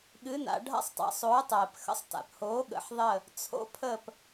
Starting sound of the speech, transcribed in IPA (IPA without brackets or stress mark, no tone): ɠ